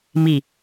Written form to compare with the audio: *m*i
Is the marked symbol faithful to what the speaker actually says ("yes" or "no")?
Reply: yes